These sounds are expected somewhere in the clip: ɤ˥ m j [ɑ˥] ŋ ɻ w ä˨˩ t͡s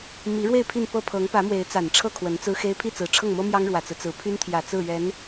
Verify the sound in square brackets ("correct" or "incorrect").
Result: correct